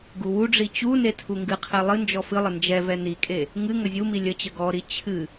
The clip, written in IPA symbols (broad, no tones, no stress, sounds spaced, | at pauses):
ɡ u w u ɖ͡ʐ i t͡ɕ u n e tʰ u ŋ ɡ ɨ qʰ ɛ lˠ ɨ n d͡ʒ ɔ f ɨ lˠ ə n d͡ʒ ɛ v ɛ n i kʼ e | ŋ ɨ ŋ ə zʲ u m i lʲ ə t͡ɕ ə ɡ ɔ ɾ i t͡ɕʰ ɨ